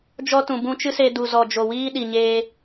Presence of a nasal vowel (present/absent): present